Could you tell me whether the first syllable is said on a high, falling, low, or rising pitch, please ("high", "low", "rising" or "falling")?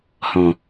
low